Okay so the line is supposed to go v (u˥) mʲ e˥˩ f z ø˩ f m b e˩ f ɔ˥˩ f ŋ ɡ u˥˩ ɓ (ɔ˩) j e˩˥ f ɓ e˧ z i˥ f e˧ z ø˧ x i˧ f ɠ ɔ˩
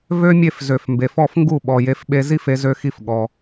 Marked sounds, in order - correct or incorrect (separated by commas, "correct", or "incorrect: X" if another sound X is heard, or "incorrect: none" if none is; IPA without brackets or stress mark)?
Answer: incorrect: ø˥, correct